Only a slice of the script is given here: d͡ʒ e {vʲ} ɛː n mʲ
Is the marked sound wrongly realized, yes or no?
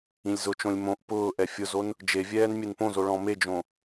no